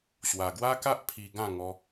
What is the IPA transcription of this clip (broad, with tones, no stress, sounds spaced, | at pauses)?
ɕ w a˨˩ ɡ w a˦ k a˦ ʔ pʰ i˧ ɡ ã˥˧ ŋ ɔ˧